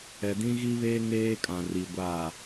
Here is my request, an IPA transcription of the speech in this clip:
ɛ˨dĩ˦ɣi˦βeː˦ ŋeː˦kʼã˨ri˨ ɡʷa˦˨

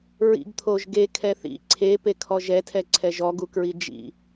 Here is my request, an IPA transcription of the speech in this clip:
ɹḭɡt̪ʰoʒ ɡekʰɛ θḭ ǀʰepekʰɔ ʒɛtʰɛǀʰɛ ʒɔɡukɹi d͡ʒḭ

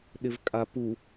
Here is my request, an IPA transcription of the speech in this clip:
ɗɪvkʼapu

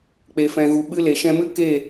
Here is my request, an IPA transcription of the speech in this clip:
k͡pe˨fɛ̃˨ɣu˨ ɓɨ˧le˨ʃɛ̃˧mɨ˦ ke˦˨

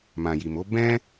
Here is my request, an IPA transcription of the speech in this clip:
mã˨ji˨mo˨˦ bɛ̃˦

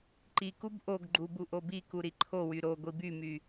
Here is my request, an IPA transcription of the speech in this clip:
ǃikub ʔoɡɡ͡ǃu buʔobiku ɾiǃʰowy ɾo ɡʷibymy

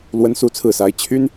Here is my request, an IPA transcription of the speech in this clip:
lwə˥nsu˥t͡sʰɹ̩˥˩sa˧˥ɪ̯ t͡ɕʰy˥n

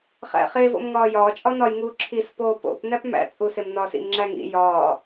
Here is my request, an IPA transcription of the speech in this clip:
χæ̰χe vo̰mŋɒːjɒː t͡ʃʼɒnɒj ŋuːǁʰis poːpo̰p næpmæ̰ t͡sʼusemnɒːsḭm ŋ͡ǁæŋḭ jɒː

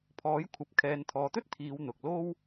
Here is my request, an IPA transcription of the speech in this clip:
pʰɔː˨˥jkʷʰɐ˨p̚ kʰɛː˨nt̪ʰɔː˨t̪ɵ˥t̚ t̪ʰiː˨˧wn̪ʊ˨k̚ lo˥w

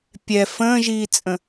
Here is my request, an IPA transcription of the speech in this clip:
pʲɛ fə̃ːʒiːt͡sʼə̃

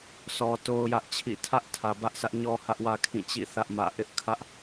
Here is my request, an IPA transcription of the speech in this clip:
sɔ˨ to˦ʊ̯jä˦ʔt͡ɕʰḭ˦˨ tʰä˦ʔ tʰä˨bä˦ʔsä˦ʔ ɲɔ˦hä˦ʔwä˦ kʰĩ˦˨t͡ɕḭ˦˨ θä˦ʔmä̰˦˨ ʔɪ˦ʔ kʰä˦ʔ

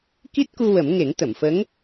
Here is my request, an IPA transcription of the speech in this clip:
ki˦˥t̚ku˧ wə˨˩˦m ŋe˨˩˦ŋt̪ə˨˩˨mfə˧˥ŋ

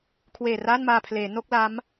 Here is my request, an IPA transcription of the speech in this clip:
kʰweː˨˩ra˥˩nmaː˧ pʰleː˩˦ no˥˩k̚la˦˥m

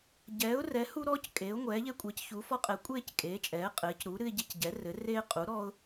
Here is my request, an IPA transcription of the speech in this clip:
ɟɛː˩˥ʊ̯rɛ˩˥ hu˦ɾɔː˦c kʼeː˩˥ʊ̯ ŋʷɛː˩˥ʎe˦ kʷʼɛ˩˥cçu˩˥fɔ˦ qʼɛ˩˥ kʷʼeː˦c kʼeː˩˥t͡ʃʼɛː˩˥qʼɘː˩˥c ɾu˩˥ɾɨ˦ɪ̯ ɟe˦cɟɛ˩˥rɘ˩˥ reː˦qʼu˩˥ɾɔː˦ʊ̯

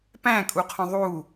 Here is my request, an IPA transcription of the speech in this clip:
pæ̃kʼuqʰõ ðˤu

